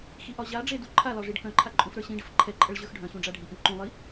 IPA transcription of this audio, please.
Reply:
x i ʔ ɒ ʑ a ɖ͡ʐ e d u ǃʰ a l ɒ ʐ i ɖ k œ̃ ǃʰ a ǃʼ ũ f ɾ ə˞ ɕ ĩ ɖ ə f ǃʰ ɛ ǃʼ ə ɭ ʑ ə˞ x ɖʱ œ̃ ɕ ũ ɖ͡ʐ a ɖʱ i ʔ ĩ ǃ ũ lˠ i

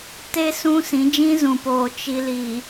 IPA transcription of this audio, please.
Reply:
t e˦ s ũ˦ s ĩ˨˦ d͡ʒ ĩ˦ z ũ˨ p oː˨ t͡ʃ i˨ l i˨

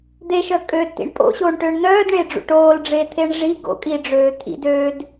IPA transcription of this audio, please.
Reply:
d̪ e ʃ œ kʼ ø d t ḭ ɳ pʼ o̰ ɕ oː ɳ ʈ ø ɳ n̪ œː d ɳ e ɖ͡ʐ ṵ ʈ oː l ɖ͡ʐ e t̪ʰ e ɳ ʐ i ɡ o̰ kʼ i ɖ͡ʐ øː t̪ʰ ḭ d øː d

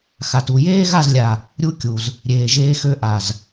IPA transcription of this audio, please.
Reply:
x a˨ t u˨ j eː˦ ɣ a˦˨ z lʲ a˨ | ɾʲ u˦ kʲ u˨ z | ɾʲ eː˨ ʒ eː˧ x ø˧ ʔ a˨ z

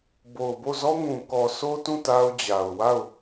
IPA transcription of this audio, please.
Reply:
b o˨ ʊ̯ b o˦˨ z ɔ˦ ŋ ũ˨ k ɔ˨ sʰ o˦ t ũ˦˨ t a˦ ʊ̯ d͡ʑ a˨ ʊ̯ w a˦˨ ʊ̯

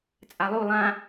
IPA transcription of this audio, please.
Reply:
t͡sʼ a lˠ u lˠ ã

